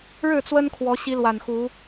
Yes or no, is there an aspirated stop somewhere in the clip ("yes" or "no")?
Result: yes